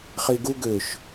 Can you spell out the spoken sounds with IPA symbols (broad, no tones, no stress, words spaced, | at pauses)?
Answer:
χiɡu ɡøʃ